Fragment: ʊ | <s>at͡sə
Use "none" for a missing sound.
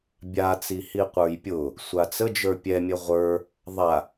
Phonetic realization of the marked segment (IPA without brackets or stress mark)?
sʷ